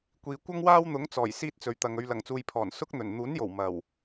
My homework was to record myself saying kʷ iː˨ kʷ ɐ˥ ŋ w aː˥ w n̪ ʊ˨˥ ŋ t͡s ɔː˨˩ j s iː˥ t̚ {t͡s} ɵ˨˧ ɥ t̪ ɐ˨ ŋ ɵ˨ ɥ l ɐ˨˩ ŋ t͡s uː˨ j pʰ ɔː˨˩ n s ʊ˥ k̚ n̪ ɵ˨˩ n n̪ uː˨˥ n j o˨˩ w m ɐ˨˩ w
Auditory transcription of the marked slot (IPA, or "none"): t͡s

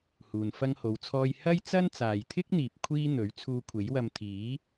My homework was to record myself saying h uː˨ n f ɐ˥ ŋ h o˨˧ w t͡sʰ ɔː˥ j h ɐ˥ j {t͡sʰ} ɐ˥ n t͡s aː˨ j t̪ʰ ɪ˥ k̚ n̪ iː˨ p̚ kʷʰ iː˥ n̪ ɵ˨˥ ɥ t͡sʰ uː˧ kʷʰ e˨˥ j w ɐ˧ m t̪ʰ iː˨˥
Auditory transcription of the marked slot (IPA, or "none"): t͡s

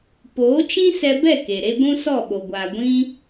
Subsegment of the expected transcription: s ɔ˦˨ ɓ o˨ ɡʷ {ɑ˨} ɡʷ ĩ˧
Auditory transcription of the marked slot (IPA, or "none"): a˨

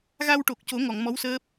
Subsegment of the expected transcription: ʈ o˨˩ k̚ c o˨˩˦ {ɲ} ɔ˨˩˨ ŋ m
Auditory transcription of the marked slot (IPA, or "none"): ŋ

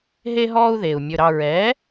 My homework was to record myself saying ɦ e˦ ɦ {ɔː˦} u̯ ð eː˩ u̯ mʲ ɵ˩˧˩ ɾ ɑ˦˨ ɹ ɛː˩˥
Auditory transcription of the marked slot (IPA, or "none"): ɔː˦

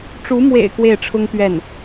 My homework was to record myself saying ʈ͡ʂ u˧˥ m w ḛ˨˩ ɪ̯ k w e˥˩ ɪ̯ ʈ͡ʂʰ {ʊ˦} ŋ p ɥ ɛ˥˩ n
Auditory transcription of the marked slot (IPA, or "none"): ʊ˥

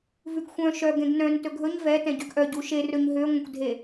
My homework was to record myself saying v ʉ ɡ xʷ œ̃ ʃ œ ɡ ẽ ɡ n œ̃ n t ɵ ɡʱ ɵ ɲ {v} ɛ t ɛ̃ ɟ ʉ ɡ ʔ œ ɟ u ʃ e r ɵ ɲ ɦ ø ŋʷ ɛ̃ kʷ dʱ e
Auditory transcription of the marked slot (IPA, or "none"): v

